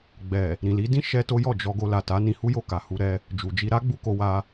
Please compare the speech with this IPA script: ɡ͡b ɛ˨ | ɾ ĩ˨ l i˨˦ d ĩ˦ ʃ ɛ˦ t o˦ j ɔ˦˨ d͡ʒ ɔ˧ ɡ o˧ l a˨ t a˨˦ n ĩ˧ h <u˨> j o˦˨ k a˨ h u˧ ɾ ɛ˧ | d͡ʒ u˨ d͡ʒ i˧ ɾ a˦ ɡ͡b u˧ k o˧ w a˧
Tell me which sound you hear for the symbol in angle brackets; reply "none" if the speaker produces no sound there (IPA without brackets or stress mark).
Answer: u˦